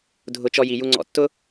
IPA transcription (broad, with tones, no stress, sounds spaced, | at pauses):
dʱ ʊ˧ t͡ʃ ɔ˧ j i˨ j u˧ ŋ͡ǀ ɔ̰˧ tː ʊ˦